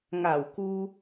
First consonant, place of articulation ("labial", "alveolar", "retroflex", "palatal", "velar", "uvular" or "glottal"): velar